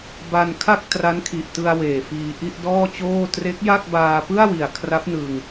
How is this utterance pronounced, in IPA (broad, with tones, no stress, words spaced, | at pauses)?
ba˧nkʰa˥˩k̚ tra˦˥nkʰi˨˩ʔtɯ˧a̯ weː˨˩fiː˧ ʔi˥˩ʔdɔː˥˩t͡ɕoː˥˩ tre˦˥k̚ja˥˩k̚ baː˧pɯ˥˩a̯wi˨˩a̯ kʰra˦˥p̚nɯ˧ŋ